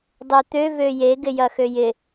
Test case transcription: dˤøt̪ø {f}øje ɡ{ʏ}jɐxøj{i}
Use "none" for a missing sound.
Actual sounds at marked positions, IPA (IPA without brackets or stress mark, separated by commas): v, ɪ, ɪ